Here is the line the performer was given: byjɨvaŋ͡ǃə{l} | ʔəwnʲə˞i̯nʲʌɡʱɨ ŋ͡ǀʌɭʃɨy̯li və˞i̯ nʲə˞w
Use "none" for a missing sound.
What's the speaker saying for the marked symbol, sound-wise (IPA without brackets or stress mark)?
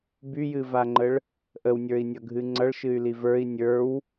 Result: ɭ